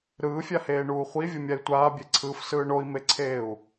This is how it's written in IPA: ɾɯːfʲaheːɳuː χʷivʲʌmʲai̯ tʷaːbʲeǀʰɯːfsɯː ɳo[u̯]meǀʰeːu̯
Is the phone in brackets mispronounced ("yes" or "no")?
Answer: yes